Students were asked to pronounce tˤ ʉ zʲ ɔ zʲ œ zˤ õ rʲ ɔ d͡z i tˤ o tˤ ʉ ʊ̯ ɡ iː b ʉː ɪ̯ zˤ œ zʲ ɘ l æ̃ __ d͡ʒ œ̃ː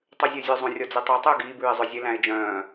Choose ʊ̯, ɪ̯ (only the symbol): ɪ̯